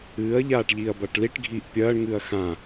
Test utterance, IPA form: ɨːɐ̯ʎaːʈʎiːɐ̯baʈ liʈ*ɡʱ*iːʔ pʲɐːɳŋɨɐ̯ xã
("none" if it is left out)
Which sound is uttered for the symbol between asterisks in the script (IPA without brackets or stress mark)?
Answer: ɡʱ